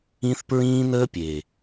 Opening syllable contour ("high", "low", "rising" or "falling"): high